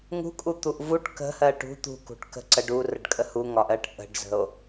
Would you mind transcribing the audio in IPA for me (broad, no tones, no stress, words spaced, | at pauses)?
ŋṳkʼut̪uʔ vuʈ kə̤hɜ ʈṳ t̪ṳkṳʈ kə̤ ǀə ɖurəɖkʼə huŋɒʔɜʈ ʔə̤ɖzə̤o̯